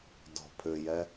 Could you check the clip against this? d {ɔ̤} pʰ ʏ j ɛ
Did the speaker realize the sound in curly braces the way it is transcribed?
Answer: yes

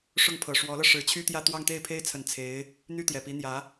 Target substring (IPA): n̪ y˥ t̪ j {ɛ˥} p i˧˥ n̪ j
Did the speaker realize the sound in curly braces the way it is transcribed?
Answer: no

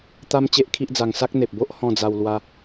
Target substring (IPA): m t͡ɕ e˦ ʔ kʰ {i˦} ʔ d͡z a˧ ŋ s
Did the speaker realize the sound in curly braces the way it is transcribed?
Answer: yes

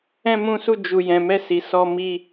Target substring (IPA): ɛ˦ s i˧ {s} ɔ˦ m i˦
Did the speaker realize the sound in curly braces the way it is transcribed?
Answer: yes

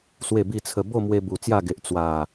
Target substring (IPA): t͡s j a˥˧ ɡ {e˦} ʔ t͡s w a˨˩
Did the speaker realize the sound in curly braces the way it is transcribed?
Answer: no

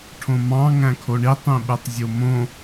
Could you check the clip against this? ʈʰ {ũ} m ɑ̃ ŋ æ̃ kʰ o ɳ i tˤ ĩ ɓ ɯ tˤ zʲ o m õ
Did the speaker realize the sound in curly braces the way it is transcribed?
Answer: no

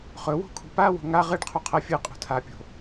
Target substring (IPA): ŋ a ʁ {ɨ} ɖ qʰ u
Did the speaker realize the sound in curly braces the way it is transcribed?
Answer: yes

